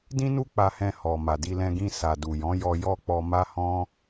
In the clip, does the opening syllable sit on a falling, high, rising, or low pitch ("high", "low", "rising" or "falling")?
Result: high